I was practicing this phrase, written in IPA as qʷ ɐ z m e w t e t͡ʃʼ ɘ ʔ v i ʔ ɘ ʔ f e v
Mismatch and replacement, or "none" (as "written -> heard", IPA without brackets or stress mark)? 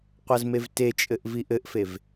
w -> v